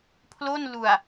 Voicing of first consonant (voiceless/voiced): voiceless